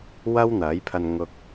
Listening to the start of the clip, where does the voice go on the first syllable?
high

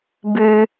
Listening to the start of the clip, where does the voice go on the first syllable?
high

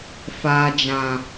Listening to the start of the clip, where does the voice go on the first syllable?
low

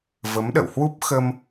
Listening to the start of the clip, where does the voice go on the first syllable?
rising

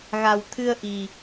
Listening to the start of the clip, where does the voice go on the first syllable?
low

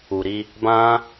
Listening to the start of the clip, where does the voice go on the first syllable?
low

